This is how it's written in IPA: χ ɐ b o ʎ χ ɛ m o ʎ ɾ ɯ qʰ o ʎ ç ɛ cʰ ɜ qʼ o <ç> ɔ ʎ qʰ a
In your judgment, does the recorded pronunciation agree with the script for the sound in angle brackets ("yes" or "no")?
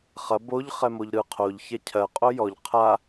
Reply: no